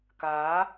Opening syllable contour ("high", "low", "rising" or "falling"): rising